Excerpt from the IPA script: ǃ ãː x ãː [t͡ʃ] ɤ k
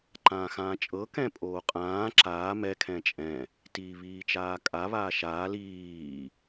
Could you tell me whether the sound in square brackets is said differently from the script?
yes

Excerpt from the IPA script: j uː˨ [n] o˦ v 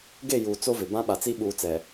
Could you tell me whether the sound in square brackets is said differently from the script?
yes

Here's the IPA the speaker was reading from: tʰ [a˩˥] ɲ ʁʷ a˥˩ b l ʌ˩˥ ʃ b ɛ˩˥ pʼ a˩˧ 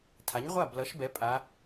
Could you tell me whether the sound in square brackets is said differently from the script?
no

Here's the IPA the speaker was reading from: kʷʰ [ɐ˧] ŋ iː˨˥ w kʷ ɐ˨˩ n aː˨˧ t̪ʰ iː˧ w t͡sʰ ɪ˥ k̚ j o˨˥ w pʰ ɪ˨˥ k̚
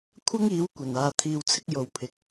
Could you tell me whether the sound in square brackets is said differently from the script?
yes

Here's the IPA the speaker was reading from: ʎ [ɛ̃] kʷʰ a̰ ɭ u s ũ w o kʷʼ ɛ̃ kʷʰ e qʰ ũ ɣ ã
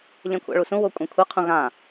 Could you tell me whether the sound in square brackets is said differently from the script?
no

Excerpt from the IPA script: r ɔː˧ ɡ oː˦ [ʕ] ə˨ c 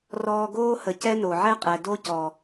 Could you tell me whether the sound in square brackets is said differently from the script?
yes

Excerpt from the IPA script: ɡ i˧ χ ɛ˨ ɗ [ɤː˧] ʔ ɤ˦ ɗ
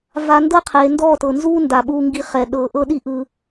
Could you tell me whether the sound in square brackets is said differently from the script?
no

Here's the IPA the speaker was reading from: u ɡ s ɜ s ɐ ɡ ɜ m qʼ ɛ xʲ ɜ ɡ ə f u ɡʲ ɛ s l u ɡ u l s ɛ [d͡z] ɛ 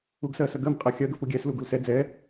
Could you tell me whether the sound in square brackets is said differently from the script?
no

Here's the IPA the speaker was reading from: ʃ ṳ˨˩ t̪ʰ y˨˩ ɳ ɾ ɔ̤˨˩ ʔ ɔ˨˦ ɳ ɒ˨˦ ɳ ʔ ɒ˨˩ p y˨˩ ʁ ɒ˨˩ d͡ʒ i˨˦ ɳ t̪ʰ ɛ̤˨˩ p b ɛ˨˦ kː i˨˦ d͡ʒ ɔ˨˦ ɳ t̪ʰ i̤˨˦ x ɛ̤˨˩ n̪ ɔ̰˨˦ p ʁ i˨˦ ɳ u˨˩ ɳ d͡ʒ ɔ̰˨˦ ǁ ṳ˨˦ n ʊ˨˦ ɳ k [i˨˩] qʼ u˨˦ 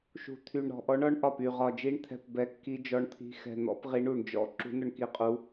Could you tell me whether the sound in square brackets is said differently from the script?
no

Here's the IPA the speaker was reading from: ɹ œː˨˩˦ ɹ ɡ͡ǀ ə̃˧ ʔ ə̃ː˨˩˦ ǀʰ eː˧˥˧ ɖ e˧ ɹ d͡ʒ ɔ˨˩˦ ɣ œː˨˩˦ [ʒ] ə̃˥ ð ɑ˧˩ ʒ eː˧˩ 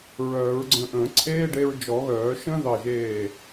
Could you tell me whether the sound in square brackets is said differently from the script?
yes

